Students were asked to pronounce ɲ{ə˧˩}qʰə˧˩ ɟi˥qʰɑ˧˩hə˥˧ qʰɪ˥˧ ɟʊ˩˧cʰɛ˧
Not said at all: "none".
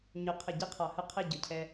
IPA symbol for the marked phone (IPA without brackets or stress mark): ʊ˧˩